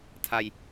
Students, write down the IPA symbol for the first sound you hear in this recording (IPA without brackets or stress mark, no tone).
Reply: tʰ